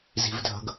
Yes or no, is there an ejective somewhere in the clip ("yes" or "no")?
no